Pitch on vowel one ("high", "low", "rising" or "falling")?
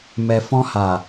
low